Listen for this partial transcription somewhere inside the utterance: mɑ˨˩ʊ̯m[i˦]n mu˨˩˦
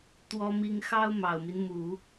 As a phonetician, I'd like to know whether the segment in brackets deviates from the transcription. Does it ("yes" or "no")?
no